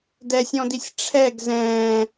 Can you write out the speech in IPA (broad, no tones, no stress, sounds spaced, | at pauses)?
d ɛ sʲ ɔ̃ d i sʲ ʈ͡ʂʰ ɛ ɡ z ɛ̃ː